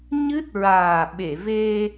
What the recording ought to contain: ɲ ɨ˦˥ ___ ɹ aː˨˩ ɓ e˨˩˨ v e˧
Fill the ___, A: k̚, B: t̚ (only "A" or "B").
B